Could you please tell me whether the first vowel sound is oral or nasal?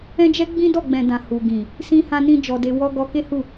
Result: nasal